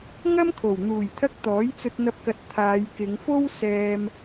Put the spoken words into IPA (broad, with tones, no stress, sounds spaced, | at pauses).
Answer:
ŋ ɐ˥ m kʰ o˨˩ w n̪ uː˨˩ j t̪ʰ ɐ˧ k̚ t̪ ɔː˨˥ j t͡s ɵ˧ t̚ n̪ ɐ˧ p̚ k ɐ˨ t̚ t̪ʰ aː˨˧ j k ɪ˨˧ ŋ f o˥ w s ɛː˧ m